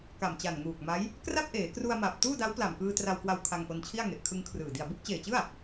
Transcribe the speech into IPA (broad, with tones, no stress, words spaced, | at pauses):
ka˨˩mt͡ɕa˨˩nŋuː˨˩k̚ma˦˥j | kra˥˩p̚ʔeː˩˦kru˧a̯ma˨˩p̚ tuː˥˩da˦˥wpla˨˩mkɯː˧ tra˧wkwa˧w kʰa˧ŋʔo˧nt͡ɕʰi˥˩a̯ŋe˨˩ʔ kʰɯ˧ŋkʰrɯː˨˩ di˨˩a̯bu˥˩k̚t͡ɕeː˨˩t͡ɕɯ˥˩a̯